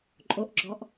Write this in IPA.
ǃʼ o ʔ ɡ͡ǁ ɔ ʔ

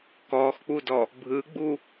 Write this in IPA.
k ɔ x k͡p u d ɔ | bʱ ɯ ɡ͡b u

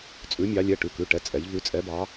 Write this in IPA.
t͡sʼ ʉ˩˧ mʲ ɑ˩˧ lʲ ɛ˩˧˩ ʈ ʉ˩˧˩ k ʉ˩˧˩ ʈ ɛ˩˧˩ t͡sʼ ɛ˩˧ ʎ v ʉ˩˧ t͡sʼ ɛ˩˧ b ɑ˩˧

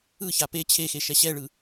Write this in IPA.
ɯ ç a p e t͡ɕʰ e x e ʃ ɛ ɕ ɛ ɭ ɯ

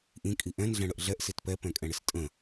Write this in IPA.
ʔ ĩ kʼ i ʔ ɛ̃ n ɮ ɛ̃ ɽ ə ʔ ɮ ɛ ʔ s i t p ɛ p ɛ̃ kʼ ɛ̃ ɽ ɪ s tʼ ə̃

